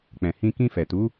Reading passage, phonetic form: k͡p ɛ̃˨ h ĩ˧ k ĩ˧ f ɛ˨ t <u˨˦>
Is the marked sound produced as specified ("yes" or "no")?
yes